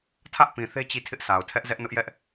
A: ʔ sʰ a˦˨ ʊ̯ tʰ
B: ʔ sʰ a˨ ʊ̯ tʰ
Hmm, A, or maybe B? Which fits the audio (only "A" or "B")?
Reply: B